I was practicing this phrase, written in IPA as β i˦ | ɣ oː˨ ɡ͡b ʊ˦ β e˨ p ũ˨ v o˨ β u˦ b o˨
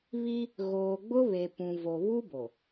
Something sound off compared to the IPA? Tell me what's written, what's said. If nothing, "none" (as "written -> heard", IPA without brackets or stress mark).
none